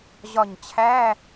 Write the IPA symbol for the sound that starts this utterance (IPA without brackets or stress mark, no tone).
ʑ